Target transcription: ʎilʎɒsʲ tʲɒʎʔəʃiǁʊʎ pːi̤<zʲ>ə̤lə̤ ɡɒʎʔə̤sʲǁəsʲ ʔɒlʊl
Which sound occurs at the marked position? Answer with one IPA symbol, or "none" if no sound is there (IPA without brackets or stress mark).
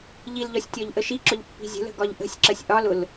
zʲ